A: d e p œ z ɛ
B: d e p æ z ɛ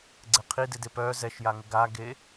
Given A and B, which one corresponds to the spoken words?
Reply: A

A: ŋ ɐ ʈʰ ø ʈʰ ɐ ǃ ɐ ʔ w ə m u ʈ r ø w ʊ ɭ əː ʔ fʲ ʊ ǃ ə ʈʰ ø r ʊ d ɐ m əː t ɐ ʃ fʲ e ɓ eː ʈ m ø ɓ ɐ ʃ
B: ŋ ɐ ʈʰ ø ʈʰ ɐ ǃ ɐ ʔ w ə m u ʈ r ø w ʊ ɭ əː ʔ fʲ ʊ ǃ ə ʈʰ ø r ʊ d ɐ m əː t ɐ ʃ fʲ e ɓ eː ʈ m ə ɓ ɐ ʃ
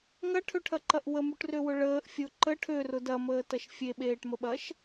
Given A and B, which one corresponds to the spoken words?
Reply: B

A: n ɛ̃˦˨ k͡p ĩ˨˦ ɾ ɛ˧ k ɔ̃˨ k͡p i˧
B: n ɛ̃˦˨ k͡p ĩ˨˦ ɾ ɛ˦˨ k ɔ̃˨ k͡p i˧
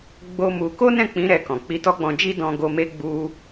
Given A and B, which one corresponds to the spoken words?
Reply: B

